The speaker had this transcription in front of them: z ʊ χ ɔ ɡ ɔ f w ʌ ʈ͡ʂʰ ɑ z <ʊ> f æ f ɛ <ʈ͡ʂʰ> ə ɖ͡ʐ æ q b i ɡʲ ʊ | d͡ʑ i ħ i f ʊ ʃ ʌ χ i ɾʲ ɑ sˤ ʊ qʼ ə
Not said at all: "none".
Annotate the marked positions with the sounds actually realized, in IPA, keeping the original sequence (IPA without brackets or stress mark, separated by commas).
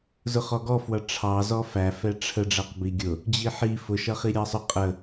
ɔ, ʈ͡ʂʰ